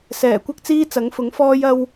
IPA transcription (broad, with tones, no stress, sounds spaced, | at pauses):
s ɛː˨˩ kʷ ɐ˥ k̚ t͡s iː˥ t͡s ɐ˨˥ ŋ f ʊ˨˥ ŋ f ɔː˥ j ɐ˥ w